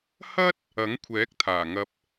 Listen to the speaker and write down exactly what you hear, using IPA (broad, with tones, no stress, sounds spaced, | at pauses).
h ɐ˥ t̚ | ɐ˨˥ ŋ kʷʰ ɛː˨˥ k̚ t̪ʰ aː˨˩ ŋ ɐ˧ p̚